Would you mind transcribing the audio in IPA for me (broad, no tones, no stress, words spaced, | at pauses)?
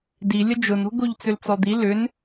di lʲəd͡ʒʊno̤ ɡoʎt͡sʏlt͡sɔd̪i lʏn